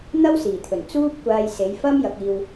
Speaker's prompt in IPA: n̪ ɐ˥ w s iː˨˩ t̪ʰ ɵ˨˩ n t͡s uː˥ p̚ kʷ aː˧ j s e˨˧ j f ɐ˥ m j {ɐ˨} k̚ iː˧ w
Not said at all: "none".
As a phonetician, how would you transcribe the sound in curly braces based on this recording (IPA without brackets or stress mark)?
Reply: ɐ˧